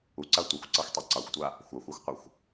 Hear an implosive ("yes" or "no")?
no